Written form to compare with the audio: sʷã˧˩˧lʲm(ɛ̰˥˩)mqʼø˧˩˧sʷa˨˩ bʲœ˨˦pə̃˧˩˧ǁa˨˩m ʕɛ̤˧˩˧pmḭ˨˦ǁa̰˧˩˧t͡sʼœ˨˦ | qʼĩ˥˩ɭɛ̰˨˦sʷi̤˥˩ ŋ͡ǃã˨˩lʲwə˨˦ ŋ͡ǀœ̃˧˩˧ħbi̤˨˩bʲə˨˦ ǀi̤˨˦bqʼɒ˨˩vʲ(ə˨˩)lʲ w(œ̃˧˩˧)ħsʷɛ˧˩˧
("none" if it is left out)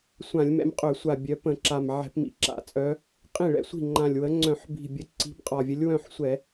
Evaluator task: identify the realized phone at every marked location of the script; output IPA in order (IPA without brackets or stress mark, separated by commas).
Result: ɛ̰˨˦, ə˨˦, œ̃˥˩